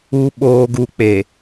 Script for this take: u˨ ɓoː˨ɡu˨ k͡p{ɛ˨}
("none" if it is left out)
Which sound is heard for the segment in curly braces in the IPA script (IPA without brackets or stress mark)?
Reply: e˨